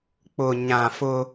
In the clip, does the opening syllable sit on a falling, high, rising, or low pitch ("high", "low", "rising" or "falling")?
low